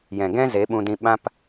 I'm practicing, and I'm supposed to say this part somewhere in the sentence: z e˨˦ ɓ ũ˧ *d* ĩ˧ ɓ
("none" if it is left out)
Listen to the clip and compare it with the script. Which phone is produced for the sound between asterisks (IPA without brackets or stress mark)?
d